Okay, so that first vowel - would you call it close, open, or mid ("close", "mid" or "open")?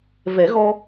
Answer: mid